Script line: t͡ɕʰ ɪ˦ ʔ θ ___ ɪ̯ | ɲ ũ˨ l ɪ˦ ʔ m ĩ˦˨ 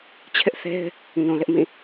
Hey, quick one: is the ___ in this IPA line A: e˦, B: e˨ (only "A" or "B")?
A